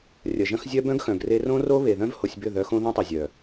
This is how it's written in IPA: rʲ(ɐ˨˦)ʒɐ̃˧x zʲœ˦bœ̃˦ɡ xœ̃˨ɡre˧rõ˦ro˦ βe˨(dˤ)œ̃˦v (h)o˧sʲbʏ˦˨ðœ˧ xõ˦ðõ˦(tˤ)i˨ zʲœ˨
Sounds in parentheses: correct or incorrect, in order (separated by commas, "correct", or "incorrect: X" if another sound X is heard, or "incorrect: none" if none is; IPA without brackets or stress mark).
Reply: incorrect: ɐ˨, incorrect: ð, correct, correct